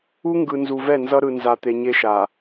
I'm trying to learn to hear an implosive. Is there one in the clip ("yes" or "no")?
no